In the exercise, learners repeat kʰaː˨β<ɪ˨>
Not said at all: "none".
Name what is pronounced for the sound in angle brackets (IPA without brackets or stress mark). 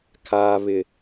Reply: ɪ˨